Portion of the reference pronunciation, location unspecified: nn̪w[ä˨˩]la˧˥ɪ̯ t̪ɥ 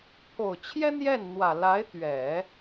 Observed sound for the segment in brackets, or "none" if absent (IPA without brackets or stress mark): ä˨˩